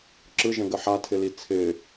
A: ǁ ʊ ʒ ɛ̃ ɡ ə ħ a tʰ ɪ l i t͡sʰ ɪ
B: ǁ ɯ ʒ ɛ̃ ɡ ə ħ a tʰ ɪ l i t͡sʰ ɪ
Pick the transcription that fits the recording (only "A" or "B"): B